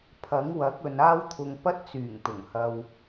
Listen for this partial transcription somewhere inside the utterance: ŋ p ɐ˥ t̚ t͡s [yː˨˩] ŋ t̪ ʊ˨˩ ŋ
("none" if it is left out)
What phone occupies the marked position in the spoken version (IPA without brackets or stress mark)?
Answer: yː˨˩